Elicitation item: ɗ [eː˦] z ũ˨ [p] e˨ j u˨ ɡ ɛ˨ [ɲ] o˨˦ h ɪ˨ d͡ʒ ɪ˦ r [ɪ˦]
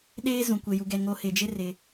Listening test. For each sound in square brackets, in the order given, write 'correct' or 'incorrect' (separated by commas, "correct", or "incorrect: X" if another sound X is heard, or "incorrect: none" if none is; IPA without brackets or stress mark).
correct, incorrect: kʷ, incorrect: ŋ, incorrect: ɪ˨